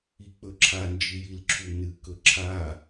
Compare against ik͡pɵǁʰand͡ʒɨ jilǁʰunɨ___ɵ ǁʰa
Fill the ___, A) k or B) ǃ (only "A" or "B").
A